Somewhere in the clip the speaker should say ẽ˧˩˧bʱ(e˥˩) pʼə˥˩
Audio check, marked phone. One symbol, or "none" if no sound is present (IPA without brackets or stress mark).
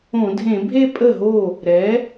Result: e˥˧